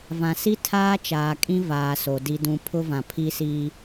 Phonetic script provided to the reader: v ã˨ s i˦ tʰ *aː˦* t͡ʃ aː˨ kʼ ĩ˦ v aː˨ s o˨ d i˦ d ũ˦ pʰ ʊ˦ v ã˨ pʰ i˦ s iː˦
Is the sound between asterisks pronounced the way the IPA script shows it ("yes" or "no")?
yes